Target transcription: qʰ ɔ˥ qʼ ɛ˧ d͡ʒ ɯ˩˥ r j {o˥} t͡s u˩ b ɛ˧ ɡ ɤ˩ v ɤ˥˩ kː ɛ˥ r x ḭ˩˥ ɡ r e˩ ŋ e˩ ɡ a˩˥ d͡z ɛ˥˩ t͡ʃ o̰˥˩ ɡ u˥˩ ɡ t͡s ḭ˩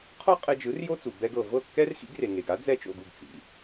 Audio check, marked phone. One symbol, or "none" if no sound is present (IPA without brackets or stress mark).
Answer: o˥